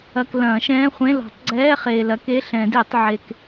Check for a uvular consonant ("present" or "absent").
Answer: present